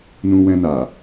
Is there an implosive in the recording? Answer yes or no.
no